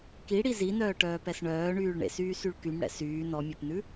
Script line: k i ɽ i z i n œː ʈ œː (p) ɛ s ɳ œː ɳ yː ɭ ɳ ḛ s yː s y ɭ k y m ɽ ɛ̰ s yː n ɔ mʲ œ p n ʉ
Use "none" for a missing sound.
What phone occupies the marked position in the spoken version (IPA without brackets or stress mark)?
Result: p